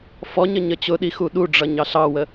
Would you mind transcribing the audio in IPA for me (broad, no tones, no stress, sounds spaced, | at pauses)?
f ɔ ɲ ə ɲ ə t͡ɕ ʊ ɗ i x u ɗ u ɖ͡ʐ ʌ ɲ ɑ ɬ ɑ w ə